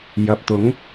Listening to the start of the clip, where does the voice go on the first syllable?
low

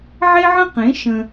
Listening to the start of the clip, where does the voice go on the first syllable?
high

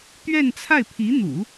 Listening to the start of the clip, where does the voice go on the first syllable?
falling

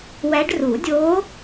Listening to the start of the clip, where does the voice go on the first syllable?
rising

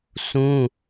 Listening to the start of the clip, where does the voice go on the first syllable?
high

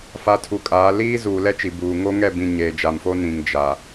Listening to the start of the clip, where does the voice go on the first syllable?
rising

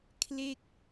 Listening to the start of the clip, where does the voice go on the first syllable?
falling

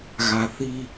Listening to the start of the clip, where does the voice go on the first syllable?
low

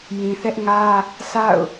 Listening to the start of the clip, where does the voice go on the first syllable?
low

